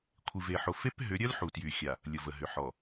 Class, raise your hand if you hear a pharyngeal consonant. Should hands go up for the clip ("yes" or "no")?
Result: yes